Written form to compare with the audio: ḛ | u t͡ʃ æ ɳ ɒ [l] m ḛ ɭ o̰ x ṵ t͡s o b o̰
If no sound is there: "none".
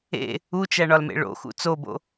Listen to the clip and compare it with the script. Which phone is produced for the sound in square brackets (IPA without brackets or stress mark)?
l